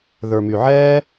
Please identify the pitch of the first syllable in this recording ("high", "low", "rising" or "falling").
low